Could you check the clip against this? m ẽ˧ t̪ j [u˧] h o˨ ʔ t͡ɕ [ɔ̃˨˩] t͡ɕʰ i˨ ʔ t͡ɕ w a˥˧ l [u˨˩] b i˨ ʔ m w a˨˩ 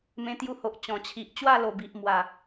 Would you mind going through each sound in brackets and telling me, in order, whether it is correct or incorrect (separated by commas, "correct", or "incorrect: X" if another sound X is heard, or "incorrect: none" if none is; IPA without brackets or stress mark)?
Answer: correct, correct, incorrect: o˨˩